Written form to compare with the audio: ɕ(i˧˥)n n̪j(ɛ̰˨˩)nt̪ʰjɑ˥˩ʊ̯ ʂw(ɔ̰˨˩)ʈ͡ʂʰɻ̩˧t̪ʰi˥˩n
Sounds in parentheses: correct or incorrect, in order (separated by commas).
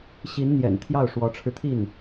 correct, correct, incorrect